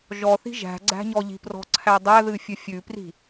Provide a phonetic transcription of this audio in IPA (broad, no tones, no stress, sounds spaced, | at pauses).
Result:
ʒ ɔ θ i̤ ʒ æ̤ ɡ͡ǀ æ̤ ɲ ɔ ʎ i̤ p r ɔ̤ ǀʰ æ dˤ æ ð ɨ fʲ ɨ fʲ ʉ p r i̤